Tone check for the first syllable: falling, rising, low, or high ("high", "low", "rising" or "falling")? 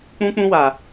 high